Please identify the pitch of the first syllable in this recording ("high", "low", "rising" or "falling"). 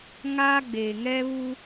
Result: high